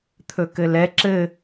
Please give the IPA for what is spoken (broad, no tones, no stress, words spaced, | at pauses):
t̪ʰɵkɘlɛ ǁɘ